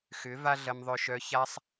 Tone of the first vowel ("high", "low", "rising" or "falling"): rising